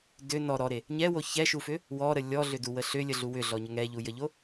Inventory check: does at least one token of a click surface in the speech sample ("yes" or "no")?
no